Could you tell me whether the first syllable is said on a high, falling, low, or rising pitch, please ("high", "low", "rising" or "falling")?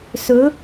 rising